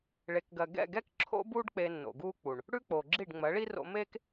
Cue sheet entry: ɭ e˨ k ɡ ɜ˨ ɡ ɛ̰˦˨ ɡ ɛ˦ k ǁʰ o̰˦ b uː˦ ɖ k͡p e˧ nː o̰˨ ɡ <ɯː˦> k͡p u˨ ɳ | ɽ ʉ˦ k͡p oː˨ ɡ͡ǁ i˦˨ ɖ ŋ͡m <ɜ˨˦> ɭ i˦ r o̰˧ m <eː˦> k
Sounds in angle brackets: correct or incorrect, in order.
incorrect, correct, correct

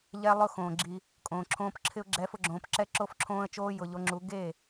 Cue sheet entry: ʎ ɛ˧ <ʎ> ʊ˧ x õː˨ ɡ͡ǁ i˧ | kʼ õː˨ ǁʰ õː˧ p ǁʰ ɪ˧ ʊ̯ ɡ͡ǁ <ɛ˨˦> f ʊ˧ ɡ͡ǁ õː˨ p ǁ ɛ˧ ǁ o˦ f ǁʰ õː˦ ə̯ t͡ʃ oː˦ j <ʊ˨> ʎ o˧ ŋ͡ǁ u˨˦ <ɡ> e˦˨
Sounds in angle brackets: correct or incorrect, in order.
incorrect, correct, correct, correct

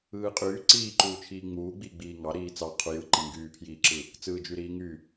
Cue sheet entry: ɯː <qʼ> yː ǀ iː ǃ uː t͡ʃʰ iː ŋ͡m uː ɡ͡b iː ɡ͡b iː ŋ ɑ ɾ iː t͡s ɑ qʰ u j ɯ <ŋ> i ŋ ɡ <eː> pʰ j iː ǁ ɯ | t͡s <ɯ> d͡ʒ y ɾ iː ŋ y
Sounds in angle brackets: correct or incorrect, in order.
correct, incorrect, incorrect, incorrect

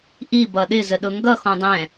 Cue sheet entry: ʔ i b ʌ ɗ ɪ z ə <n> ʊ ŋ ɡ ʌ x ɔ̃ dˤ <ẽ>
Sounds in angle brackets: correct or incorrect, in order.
incorrect, incorrect

